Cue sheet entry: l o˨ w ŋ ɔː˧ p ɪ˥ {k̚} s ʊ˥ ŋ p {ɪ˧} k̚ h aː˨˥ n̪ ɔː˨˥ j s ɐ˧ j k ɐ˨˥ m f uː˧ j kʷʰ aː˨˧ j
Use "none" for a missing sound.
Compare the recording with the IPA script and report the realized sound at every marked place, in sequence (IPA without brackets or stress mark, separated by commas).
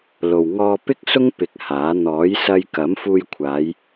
k̚, ɪ˧